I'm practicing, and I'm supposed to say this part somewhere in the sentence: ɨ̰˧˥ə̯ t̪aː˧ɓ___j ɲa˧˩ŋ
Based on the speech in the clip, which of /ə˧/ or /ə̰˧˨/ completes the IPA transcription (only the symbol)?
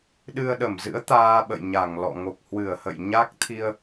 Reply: ə̰˧˨